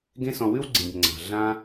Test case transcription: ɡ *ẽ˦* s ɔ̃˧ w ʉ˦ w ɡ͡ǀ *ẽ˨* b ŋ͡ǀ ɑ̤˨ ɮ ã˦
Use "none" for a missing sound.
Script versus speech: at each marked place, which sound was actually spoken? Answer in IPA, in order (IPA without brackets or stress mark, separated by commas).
ẽ˦, ĩ˨